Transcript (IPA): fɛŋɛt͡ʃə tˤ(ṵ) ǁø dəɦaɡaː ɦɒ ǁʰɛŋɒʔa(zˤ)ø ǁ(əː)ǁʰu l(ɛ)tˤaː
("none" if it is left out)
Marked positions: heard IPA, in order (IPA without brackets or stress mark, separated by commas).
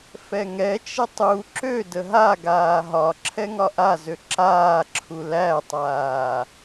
u, z, aː, æ